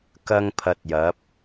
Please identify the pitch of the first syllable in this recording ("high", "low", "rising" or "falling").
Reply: high